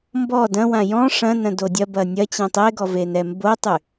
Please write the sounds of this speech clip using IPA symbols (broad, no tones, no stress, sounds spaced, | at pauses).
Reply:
m b ɔ d ɐ̃ w ã j ɔ̃ ʂ ɐ̃ n ɐ̃ d o dʲ ɐ b ɐ nʲ ɐ t͡ɕ ɛ̃ tˤ e ɡ ɔ v e n ɛ m b o tˤ y